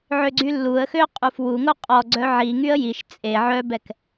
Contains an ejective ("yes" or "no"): yes